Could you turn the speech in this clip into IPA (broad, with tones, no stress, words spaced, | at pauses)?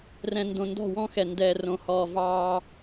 rɛ̃˨ndõ˨ ndɔ̤˦˨wɔ̃˦xɛ˨ndɛ˨ rõ˦hɔː˦ vɑː˦